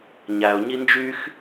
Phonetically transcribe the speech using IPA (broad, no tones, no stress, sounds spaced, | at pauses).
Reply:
ɲ æ ʊ̯ ɲ i n d͡ʒ y x